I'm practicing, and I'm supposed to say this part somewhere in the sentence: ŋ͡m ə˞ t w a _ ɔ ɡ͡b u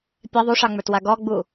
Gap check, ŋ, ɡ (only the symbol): ɡ